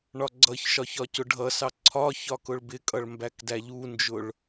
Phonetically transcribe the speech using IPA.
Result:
ɳ ɒ ɡ͡ǀ ʌ ç ʃ ɒ ç ɒ c ʊ ɖʱ ʌ s ɑ ǀʰ ɒ ç ɒ k ʊ ɭ b ɪ kʼ ʌ ɭ m b æ k d æ ʎ u n d͡ʒ ʊ ɭ

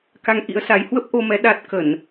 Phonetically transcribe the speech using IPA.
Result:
k a˧ ŋ ʔ ḭ˧˥ ə̯ s a˨˦ j h w ə˦˥ p̚ ʔ o˧ m ɛ˨˦ ɗ a˦˥ t̚ k ə˧˩˨ n

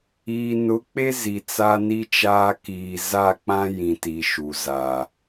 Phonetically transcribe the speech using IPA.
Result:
iː˨ n ʊ˨˦ k͡p e˦ z i˨ t͡s a˦ n i˦ t͡ʃ aː˦ k iː˨ z a˦˨ k͡p ã˦ j ĩ˨ t i˨ ʃ u˨ z a˨

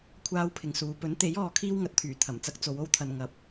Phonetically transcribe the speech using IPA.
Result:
kʷʰ aː˥ w pʰ ɪ˨ ŋ s uː˨˧ p ɵ˨˥ n t̪ e˨˥ j ɔː˨˧ kʰ iː˥ w ŋ ɐ˨˥ t̚ t̪ʰ yː˨˩ t̪ʰ ɐ˨˩ m t͡s ɐ˥ k̚ t͡s o˨˧ w o˥ w t̪ʰ ɐ˨ n ŋ ɐ˨ p̚

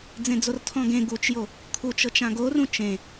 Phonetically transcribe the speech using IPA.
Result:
d͡z ẽ d͡z o r tʰ ɔ̃ ɡ ẽ ɡ u t͡ʃ j o | kʰ u t͡ʃ ɤ t͡ʃ ã ɡ o r ũ t͡ʃ ẽ

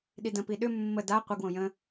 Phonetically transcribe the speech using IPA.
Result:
ɗ i d ə̃ p i ɗ ʏ mː ə d a qʷ ə ɡ w õ j ə̃

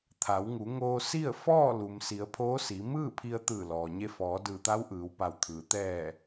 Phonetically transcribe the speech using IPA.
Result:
t̪ʰ a˩˧ w ŋ u˩˧ ŋ oː˧ s i˥˨ ə̯ f ɔː˥˨ l u˩ m s i˩˧ ə̯ pʰ oː˧˥ s i˩˧ m ɯː˥˨ pʰ i˧ ə̯ t̪ ɯː˧˩ l ɔː˩ ɲ e˧ f ɔː˩˧ d ɯː˧˩ t̪ a˧˥ w ʔ ɯː˩˧ w p a˧˩ w t̪ʰ ɯː˩ t̪ ɛː˧˩

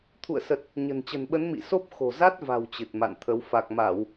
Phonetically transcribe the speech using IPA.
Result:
t̪ʰ ṵ˧˨ ə̯ s ə˨˩ t̚ | ɲ ə̤˨˩ n t͡ɕ ə̤˨˩ n ɓ ə˨˦ n m ḭ˧˨ s o˦˥ p̚ x o̤˨˩ z a˦˥ t̚ v a̤˨˩ w t͡ɕ ɨ˨˩ t̚ m a̰˧˨ n t̪ʰ ə˨˦ w f a˨˩ k̚ m a˧˩˨ w

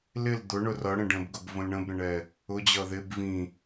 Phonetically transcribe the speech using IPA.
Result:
l ɪ l d̪ ʊ ɳ ʊ r ʌ ɽ ə̃ ɖ ə̃ b ɡ ʊ b v ə̃ l ɳ ə̃ b ɾ ə̃ ɳ ɛ | ʊ d͡ʑ ʌ ð ɪ b v ĩ

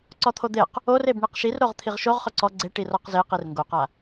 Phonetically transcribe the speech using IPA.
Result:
ǀ ɔ t̪ʰ o d̪ e q | o r e b ɳ i q ʃ i r ɾ o ʁ t̪ʰ i ʁ ʃ o ʁ χ ʊ ǀ ɔ ɡ͡ǀ e ʈ i r ɔ q z e q i r ŋ ɡ o q a

